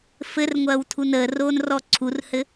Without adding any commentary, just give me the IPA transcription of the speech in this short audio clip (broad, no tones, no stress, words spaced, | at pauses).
fɘrŋʷɐːw tʰunəːroːn rɔǀʰurhɘ